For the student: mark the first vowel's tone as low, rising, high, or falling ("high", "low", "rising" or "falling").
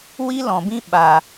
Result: high